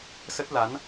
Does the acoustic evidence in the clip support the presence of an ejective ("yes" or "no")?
no